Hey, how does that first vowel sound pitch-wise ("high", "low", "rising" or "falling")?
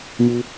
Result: high